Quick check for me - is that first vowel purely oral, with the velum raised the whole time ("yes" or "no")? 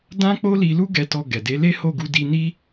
no